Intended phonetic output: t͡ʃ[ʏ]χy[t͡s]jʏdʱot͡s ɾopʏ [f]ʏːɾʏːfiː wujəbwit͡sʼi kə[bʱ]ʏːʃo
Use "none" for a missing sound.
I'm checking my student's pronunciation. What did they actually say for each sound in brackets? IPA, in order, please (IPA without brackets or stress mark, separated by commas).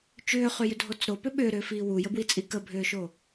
ʏː, none, ɓ, bʱ